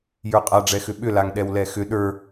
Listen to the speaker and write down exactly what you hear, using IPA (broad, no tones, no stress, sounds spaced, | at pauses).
j ə˞ qʼ a ɖ͡ʐ ɛ x ʏ ɓ ʏ l a ŋ ɗ ɛ w l ɛ x ʏ ɗ ə˞